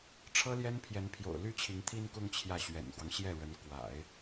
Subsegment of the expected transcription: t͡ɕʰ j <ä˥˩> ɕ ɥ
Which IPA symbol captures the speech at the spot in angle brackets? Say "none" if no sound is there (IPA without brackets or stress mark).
ä˥˩